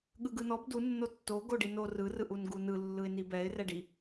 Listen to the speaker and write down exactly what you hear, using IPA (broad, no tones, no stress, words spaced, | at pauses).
ɠɯɡɯnɔb du nːotːo ɡoɖino rɯ rɯʔunɡunɯ lːɯɪ̯nibɛɪ̯ rɛɖi